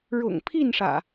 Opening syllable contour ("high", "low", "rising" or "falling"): low